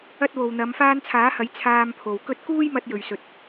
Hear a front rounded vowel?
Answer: no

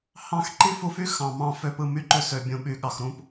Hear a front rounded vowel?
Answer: yes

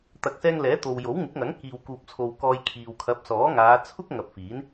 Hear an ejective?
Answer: no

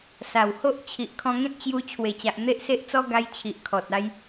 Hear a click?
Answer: no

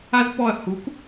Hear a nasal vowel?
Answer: no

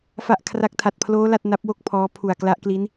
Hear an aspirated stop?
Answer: yes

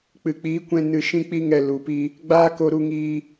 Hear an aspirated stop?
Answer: no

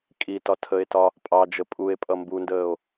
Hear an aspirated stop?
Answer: yes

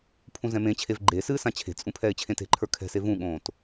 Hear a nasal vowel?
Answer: yes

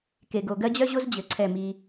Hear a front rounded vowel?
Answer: yes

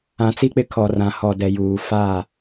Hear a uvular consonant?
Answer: no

